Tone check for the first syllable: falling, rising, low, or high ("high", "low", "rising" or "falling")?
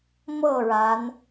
falling